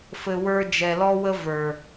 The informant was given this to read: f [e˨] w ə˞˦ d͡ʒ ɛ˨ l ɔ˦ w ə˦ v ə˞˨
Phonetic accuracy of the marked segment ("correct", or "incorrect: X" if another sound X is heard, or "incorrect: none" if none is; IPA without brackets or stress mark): incorrect: ɘ˨